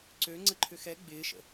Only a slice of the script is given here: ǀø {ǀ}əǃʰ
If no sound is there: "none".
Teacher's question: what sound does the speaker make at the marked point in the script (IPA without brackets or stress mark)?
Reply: ŋ͡ǀ